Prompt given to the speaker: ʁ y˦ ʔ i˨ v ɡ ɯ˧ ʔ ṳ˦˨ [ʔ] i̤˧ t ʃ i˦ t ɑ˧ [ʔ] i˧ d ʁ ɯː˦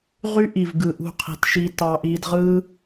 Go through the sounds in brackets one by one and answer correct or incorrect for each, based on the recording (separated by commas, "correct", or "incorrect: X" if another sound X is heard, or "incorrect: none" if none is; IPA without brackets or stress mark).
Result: incorrect: qʰ, correct